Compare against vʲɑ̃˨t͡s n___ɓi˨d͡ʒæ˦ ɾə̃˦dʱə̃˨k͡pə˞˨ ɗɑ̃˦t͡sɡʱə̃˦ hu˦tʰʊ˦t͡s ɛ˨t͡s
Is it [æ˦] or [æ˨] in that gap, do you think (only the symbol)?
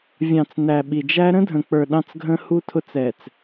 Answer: æ˨